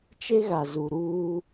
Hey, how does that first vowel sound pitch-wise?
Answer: high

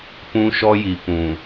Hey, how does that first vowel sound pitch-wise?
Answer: high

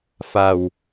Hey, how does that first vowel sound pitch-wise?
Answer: low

